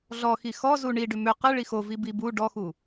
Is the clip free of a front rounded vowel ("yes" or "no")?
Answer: no